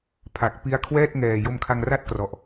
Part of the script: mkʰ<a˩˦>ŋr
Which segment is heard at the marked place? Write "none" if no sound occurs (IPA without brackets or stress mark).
a˧